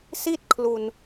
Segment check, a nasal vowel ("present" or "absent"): absent